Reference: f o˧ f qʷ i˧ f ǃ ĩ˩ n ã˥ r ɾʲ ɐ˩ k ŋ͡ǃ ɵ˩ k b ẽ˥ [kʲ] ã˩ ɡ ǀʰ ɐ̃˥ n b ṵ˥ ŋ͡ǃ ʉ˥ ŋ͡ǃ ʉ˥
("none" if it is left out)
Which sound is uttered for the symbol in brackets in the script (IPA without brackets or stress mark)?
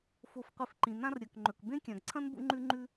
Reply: kʲ